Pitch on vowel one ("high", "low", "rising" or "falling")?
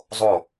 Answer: falling